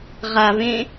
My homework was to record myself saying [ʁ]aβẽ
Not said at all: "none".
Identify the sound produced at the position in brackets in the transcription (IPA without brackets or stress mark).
ʁ